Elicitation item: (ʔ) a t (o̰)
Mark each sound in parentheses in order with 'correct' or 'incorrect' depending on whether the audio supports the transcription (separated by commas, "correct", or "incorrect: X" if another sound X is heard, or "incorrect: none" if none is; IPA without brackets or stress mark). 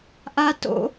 correct, correct